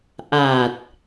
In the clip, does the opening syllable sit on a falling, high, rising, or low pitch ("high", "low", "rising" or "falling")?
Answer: low